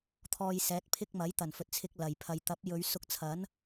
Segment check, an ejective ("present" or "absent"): absent